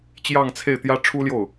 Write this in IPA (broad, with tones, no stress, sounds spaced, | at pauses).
t͡ɕ j ɑ˥˧ ŋ t͡sʰ e˥˩ ɪ̯ t̪ j ä˥ ʈ͡ʂʰ u˥ l j o˥˩ ʊ̯